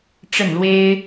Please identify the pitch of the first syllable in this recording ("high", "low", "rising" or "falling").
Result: falling